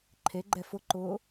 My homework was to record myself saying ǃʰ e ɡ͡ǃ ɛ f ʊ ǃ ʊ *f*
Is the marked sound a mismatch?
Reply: yes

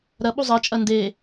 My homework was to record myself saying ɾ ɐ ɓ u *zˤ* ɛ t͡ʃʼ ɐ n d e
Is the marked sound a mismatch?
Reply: no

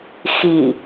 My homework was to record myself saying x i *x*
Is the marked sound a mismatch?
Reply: yes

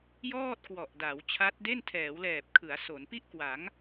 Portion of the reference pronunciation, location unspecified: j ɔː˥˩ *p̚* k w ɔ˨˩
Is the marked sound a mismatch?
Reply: yes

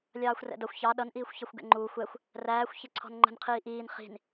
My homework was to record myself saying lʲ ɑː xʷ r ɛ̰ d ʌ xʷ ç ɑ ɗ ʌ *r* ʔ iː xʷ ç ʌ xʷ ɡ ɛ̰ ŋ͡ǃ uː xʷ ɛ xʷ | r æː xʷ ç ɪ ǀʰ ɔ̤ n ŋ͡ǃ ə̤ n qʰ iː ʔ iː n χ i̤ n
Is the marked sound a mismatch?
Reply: yes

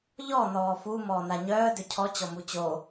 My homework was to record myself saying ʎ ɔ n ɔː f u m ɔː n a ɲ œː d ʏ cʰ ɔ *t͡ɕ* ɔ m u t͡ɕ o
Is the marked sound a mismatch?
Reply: no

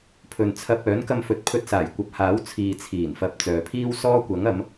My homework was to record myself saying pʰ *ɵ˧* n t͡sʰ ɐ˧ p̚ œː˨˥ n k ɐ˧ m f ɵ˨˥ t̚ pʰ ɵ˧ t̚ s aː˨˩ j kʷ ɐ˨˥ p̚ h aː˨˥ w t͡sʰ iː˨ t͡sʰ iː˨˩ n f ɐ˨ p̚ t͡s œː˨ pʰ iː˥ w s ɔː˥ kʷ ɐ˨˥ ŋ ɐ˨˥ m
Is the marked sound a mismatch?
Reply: yes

